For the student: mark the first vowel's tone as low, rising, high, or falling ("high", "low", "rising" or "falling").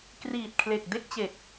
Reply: low